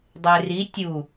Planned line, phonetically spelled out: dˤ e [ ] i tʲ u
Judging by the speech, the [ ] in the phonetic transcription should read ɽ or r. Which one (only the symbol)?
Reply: r